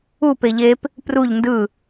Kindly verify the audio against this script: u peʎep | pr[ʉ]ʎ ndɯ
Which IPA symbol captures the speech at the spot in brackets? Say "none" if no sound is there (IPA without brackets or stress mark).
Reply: u